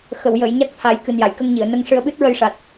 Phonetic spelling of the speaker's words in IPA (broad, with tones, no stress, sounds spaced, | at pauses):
x ə˨˩˨ w j əː˨˩˨ j ɲ a˦˥ k̚ t̪ʰ a˨˩˦ j k ɨ˨˩ n j a˨˩˨ j k ə˧ ŋ ɲ i˨˩˨ ə̯ n ə˧ ŋ ʂ ɨ˧ ə̯ ɓ ɨ˦˥ t̚ ɹ ə˧ j ʂ a˨˩ t̚